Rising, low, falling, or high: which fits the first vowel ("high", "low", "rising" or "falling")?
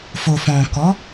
low